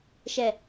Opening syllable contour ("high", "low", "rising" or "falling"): falling